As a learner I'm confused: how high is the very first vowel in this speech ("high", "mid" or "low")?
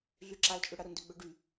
high